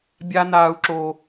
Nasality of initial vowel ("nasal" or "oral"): oral